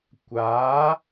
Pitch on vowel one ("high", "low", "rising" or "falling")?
rising